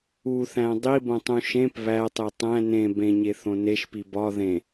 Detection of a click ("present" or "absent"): absent